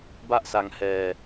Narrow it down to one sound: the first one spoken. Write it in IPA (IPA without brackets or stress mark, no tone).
b